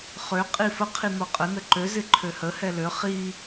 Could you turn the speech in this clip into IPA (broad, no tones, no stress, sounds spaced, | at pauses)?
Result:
χ ø qʼ i f ə qʰ i n̪ ɔ qʼ ə n ə ǃ ø z ɪ ǃʰ ø h ə h ɛ l ø χ i